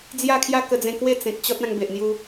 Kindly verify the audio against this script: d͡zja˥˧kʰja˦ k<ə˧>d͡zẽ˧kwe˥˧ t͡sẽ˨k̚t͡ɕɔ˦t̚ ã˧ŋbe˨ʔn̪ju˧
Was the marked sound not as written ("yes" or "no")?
no